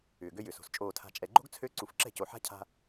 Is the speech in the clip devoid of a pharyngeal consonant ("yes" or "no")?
no